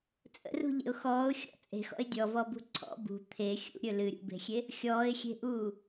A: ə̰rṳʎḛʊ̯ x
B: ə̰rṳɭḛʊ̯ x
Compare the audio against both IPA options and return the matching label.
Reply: A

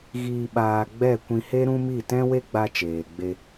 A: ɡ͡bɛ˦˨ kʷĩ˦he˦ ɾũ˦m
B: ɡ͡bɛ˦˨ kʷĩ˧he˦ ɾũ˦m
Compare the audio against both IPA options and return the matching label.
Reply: B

